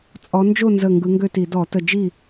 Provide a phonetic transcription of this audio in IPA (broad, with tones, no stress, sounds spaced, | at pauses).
t͡sʼ ɔ˨˦ n d͡ʒ o˥˨ n z ə˧˩ ŋ ɡ ɯ˨˦ ŋ ɡ ø˥˨ t i˧˩˧ d ɔ˧˩˧ t ə˧˩ d͡ʒ i˥˨